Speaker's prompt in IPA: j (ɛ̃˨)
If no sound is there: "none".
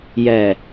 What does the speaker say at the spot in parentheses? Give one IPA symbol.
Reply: ɛ˨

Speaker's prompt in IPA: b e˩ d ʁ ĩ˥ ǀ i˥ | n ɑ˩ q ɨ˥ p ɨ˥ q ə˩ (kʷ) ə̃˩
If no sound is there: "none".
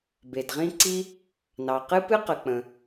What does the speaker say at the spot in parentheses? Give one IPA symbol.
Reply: k͡p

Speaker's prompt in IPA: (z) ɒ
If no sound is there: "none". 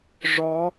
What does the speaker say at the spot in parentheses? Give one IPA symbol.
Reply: ʐ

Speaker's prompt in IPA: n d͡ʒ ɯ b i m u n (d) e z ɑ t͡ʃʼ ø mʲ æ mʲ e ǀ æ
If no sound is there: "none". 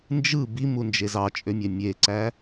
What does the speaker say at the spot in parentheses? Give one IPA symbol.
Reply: d͡ʒ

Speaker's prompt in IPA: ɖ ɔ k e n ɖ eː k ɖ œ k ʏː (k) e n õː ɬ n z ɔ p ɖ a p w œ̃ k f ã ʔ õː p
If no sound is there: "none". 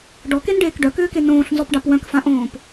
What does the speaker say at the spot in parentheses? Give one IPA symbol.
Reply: k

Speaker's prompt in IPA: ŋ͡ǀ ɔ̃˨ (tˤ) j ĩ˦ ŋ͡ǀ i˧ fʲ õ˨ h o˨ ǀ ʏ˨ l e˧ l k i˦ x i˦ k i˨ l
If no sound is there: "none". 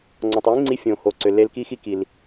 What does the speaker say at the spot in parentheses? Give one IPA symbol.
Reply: tˤ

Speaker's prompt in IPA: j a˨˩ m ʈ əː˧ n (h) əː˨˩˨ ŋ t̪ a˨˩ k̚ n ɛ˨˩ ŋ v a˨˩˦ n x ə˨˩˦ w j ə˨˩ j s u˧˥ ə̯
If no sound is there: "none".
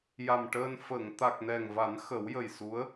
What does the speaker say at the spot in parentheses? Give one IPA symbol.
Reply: f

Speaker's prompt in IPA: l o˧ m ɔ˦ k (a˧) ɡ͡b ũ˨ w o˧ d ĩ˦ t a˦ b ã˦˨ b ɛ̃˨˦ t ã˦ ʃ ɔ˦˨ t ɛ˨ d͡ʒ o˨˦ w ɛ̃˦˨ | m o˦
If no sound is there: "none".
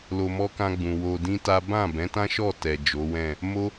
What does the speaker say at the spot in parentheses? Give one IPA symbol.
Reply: ã˧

